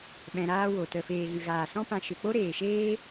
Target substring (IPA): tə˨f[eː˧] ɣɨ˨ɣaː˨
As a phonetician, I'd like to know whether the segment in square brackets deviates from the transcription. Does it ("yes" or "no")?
yes